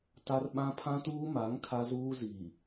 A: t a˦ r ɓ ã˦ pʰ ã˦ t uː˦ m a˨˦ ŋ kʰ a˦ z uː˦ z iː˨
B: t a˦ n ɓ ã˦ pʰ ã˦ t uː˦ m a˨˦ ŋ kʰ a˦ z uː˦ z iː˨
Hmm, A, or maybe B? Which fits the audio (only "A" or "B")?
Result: A